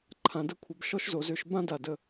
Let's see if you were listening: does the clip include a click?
yes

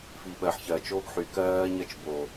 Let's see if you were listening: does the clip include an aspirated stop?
no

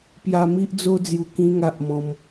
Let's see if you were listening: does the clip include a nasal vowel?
yes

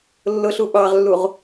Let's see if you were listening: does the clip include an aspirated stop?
no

